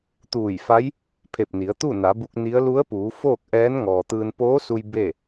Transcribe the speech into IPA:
t̪ uː˧˩ j f a˧˥ j | pʰ e˧˩ p̚ n i˩˧ ə̯ t̪ u˥˨ n a˩˧ b u˧ k̚ n i˧˥ ə̯ l u˧˥ ə̯ p uː˩˧ f oː˥˨ k̚ ʔ ɛː˧˥ n ŋ ɔː˩ t̪ ɯː˧ n p oː˧˥ s u˧ j b e˥˨

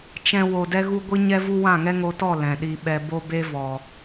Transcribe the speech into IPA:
t͡ʃ ɛ̃˧ w o˨ d ɛ˧ ɣ u˧ ɡʷ i˦ ɲ ɛ˦ v u˦ w ã˦˨ ŋ ɛ˦ ŋ o˧ t ɔ˦˨ l ɛ̃˨ ɗ i˧ ɓ ɛ˧ b o˦ b e˦ v ɔ˨

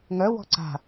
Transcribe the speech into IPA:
ŋ œ w ɔ̤ ǀ a̤

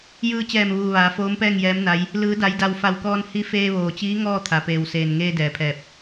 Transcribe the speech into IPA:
j ɯː˧ t͡ɕ ɛː˧˩ m ʋ uː˩ ʋ aː˩˧ f oː˧˥ m p ɛː˥˨ ŋ j ɛː˧˥ m n a˧˥ j | l ɯː˩˧ d a˩˧ j d a˩ w f a˧˩ w k ɔː˧ n h i˧˥ f eː˧ ʋ oː˩ t͡ɕ iː˧˥ ŋ ɔː˥˨ t̪ʰ a˩ p eː˩ w s eː˩ n ŋ eː˧ d ɛː˩ pʰ ɛː˧˩ p̚

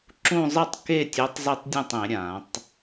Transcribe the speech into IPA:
ǁ ũ˥˧ zˤ ɯ˥˩ tˤ k e˥˧ tʲ o˧˥ tˤ z e˥˧ tˤ dʲ ũ˥˩ tˤ ẽ˨˩˦ ɾʲ ã˨˩˦ tˤ

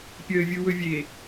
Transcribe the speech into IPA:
pʲ əː vʲ ɯ w ɵ vʲ e

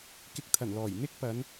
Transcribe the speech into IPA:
k ɪ˧ k̚ t̪ʰ ɐ˨˩ n l ɔː˨˩ j n̪ ɪ˥ k̚ p ɐ˨˧ n

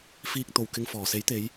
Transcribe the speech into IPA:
f iː˧ k̚ t̪ o˨˩ w k ɪ˨ ŋ f ɔː˨˩ s e˨˥ j t̪ e˨˧ j

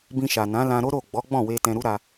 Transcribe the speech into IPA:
b ĩ˧ ʃ a˨ n ã˨˦ l ã˧ ɾ o˦ ɾ o˦˨ ɡ͡b ɔ˨˦ ɡ͡b ɔ̃˦˨ w e˧ t ɛ̃˧ ɾ u˦ ɾ a˧

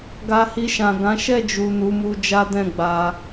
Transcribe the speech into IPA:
ɡ a˧ h i˧ ʃ ã˨ ɡ ã˨˦ ʃ ɛ˦˨ d͡ʒ u˨ n u˨˦ m u˧ d͡ʒ a˦ d ɛ̃˦˨ ɡ͡b a˧

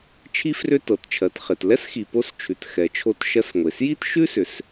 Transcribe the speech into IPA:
t͡ʃʰ i˧ f r ʏ˧ t ɤ˩ t t͡ʃʰ ɜ˩ t χ e˩ t l ɛ˥ s x i˩ p o˧ s t͡ʃʰ ʉ˩ t x ɛ˩ t͡ʃʰ o˧ t ʃ ɜ˧ s ŋʷ e˩ s j i˥ t ʃ ʉ˥ s ʏ˩ s

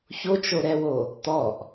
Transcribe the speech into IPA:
ç o t͡ʃ o ɾ ɛ w o | t̪ ɔ ʔ

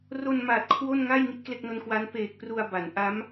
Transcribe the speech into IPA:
r o˧ n m a˨˩ t̚ kʰ w o˥˩ n ŋ a˥˩ j ŋ i˥˩ t̚ k l e˥˩ k̚ n o˦˥ n k w a˦˥ n p eː˨˩ k̚ p r u˧ a̯ b a˩˦ n ʔ a˦˥ m

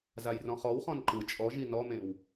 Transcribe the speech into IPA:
z a j r ɔ̃ χ ɔ w χ ɔ̃ n ǃ ɯ t͡ʃʼ ɔ ʒ i n ɔ m ẽ w

